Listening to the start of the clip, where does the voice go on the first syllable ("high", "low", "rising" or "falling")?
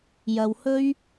low